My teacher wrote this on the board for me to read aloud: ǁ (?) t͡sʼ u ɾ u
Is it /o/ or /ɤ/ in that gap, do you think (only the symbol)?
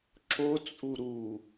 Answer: o